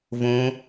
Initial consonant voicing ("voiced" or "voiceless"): voiced